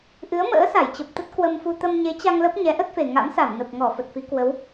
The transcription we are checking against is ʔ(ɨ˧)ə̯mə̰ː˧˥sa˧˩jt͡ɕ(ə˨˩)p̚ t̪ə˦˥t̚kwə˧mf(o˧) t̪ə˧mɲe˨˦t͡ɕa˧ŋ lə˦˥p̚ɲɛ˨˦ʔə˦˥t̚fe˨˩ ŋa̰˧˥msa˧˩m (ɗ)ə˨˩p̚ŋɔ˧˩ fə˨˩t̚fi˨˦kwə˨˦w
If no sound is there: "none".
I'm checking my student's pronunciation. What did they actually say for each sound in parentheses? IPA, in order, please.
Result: ɨ˨˦, ə˨˩, u˧, n

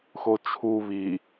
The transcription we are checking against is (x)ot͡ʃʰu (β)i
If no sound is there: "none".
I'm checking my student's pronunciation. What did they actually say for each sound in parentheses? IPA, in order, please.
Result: x, β

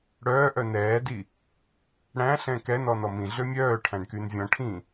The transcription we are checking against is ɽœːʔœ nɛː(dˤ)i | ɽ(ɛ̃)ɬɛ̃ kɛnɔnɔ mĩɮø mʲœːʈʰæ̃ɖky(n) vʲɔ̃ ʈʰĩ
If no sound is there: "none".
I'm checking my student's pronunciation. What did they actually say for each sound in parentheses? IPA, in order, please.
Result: d, æ̃, n

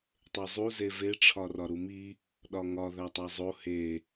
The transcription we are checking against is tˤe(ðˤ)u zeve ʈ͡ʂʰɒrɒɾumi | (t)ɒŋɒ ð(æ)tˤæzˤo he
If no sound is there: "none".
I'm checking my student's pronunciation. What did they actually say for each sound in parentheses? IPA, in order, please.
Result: zˤ, ɗ, æ

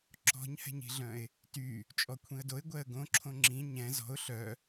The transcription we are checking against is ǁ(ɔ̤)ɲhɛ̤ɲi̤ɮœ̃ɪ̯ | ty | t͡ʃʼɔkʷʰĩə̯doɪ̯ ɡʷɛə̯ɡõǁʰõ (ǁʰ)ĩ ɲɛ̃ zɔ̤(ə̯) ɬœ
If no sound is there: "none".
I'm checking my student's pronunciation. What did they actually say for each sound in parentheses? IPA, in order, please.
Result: ɔ̤, ŋ͡ǁ, ʊ̯

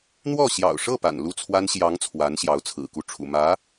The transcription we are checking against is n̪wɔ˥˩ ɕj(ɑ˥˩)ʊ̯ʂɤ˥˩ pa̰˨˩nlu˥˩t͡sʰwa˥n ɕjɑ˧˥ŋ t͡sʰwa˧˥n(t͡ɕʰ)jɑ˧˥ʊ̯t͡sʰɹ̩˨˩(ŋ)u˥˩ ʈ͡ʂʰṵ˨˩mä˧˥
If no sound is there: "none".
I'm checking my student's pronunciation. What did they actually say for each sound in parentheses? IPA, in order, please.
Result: ɑ̰˨˩, ɕ, k

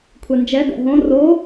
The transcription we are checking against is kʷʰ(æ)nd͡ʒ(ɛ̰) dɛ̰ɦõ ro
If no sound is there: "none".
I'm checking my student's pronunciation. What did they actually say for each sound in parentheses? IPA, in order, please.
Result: ɛ, ɛ

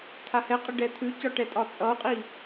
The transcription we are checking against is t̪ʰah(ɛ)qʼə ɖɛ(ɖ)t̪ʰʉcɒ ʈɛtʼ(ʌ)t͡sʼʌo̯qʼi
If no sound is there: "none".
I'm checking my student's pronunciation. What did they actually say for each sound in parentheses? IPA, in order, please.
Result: ɛ, none, ɒ

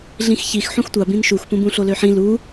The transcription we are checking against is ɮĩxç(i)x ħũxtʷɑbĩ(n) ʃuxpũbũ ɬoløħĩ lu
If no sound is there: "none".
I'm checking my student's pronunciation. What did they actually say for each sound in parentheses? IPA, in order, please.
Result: i, n

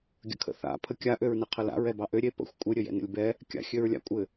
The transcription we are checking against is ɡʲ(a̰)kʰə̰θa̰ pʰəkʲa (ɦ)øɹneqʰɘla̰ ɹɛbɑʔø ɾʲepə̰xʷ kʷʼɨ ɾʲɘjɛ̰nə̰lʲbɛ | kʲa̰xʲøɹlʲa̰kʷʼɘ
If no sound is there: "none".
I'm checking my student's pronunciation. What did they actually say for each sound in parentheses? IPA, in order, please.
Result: ə̰, ʔ

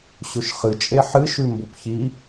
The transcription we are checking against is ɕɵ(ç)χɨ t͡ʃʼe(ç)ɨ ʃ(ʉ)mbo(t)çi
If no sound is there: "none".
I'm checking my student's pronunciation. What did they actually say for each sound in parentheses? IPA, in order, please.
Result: ʃ, ħ, ʉ, p

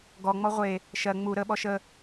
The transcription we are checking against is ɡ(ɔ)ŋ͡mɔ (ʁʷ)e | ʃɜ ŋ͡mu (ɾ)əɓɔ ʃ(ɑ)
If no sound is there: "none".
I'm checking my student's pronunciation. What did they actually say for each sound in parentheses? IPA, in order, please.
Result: ɔ, ʁʷ, ɾ, ə

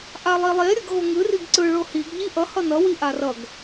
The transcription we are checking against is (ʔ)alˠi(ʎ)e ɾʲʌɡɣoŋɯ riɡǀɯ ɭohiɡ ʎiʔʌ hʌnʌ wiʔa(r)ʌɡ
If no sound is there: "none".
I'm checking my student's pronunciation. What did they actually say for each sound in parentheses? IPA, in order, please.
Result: ʔ, lˠ, r

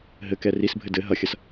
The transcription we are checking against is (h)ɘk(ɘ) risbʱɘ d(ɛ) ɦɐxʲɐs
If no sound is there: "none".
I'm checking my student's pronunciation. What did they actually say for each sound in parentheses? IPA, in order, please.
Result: ɦ, ɛ, ɘ

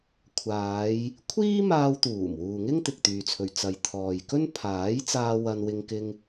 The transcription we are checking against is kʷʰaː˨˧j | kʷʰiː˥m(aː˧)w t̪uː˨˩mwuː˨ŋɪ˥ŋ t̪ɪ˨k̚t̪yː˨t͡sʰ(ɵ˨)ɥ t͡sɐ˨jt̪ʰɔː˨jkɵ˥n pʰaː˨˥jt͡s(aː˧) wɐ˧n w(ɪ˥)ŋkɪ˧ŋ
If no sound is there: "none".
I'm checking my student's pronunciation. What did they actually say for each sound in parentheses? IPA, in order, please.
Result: aː˧, ɵ˨, aː˧, ɪ˧

